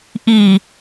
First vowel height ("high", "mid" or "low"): high